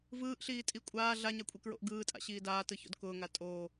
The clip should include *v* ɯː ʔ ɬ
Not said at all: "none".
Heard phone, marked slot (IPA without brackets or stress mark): v